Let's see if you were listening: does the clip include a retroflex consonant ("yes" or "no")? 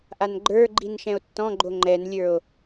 no